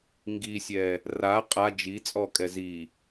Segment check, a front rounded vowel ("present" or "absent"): absent